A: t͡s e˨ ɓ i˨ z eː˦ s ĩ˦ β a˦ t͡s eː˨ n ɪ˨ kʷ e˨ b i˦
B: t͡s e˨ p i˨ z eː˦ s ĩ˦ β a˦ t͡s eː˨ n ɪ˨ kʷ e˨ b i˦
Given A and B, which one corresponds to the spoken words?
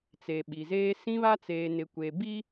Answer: A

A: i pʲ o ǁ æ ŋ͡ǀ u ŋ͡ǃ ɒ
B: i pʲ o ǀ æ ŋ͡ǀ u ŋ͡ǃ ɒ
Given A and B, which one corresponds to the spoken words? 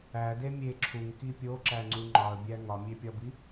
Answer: A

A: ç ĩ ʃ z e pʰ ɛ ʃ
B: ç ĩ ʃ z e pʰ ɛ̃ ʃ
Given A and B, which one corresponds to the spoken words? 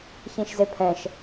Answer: B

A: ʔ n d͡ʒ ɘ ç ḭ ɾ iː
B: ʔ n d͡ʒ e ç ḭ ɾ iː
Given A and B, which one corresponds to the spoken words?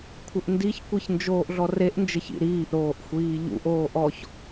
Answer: A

